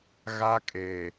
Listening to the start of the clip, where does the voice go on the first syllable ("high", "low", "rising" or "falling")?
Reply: high